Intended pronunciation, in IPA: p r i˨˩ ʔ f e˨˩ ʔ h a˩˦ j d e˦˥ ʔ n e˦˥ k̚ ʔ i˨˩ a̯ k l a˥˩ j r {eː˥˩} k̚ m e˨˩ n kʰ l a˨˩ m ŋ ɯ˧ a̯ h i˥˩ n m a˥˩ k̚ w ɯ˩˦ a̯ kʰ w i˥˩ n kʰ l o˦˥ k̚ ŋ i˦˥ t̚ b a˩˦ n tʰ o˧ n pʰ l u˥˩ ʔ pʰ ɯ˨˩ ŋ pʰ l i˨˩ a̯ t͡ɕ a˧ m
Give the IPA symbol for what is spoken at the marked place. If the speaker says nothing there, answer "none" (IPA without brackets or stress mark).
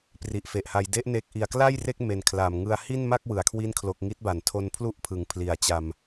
e˥˩